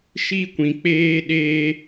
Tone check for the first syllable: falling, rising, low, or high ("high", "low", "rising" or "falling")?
high